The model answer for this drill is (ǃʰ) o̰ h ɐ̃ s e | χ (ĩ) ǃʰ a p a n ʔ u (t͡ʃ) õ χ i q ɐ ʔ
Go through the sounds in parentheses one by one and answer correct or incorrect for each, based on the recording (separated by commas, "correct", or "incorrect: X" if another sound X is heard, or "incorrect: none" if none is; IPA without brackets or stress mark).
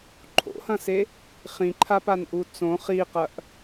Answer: correct, correct, incorrect: t͡s